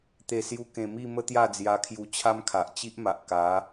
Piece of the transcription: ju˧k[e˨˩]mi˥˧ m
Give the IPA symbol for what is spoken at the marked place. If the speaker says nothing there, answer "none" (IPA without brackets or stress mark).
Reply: ẽ˨˩